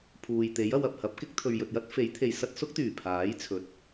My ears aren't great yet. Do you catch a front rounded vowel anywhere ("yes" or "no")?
yes